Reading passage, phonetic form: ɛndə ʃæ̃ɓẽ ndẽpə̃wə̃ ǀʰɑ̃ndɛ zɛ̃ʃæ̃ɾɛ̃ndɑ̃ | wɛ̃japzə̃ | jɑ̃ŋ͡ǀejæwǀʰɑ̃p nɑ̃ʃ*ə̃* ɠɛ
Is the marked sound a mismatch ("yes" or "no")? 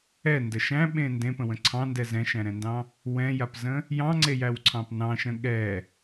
no